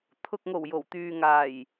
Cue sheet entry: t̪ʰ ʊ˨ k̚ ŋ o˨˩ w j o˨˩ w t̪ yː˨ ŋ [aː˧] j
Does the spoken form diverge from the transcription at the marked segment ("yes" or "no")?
yes